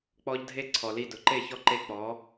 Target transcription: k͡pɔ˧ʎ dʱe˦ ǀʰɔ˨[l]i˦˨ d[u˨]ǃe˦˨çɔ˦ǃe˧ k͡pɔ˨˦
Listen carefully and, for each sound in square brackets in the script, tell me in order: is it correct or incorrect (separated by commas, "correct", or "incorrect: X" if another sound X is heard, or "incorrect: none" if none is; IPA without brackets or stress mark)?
correct, incorrect: ʊ˨